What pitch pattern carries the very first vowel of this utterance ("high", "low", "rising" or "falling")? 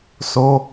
high